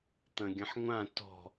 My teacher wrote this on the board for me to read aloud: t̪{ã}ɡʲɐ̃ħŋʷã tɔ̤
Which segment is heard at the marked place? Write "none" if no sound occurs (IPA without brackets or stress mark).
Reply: ɐ̃